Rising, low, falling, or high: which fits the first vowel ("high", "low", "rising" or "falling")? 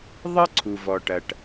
high